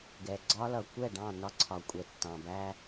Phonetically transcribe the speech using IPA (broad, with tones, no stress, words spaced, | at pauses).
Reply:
ɡɛ˨ɡ͡ǀɒ˦lʌ˨ kʷɛ˦˨ɖɑ̃˦˨ nɒ˦ǀʰɒ˨ kʷʼɛ˨tːɑ̃˨bæ˦